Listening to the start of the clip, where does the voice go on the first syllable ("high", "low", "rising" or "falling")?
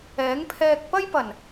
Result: rising